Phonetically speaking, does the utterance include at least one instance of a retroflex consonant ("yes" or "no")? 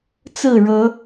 yes